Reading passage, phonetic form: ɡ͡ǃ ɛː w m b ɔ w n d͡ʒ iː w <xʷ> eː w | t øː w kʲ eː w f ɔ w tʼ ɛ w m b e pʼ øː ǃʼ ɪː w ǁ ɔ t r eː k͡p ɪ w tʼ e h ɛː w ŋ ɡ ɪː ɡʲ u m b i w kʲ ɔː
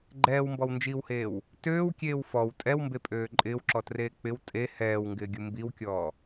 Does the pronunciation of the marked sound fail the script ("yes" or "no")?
yes